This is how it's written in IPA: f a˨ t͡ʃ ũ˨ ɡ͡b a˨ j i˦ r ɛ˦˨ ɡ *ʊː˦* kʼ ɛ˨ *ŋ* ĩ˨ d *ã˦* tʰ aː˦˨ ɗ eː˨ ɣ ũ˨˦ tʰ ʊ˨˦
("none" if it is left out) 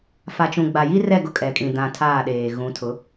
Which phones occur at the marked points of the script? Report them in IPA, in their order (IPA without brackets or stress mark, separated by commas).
ʊ˦, kʼ, ã˨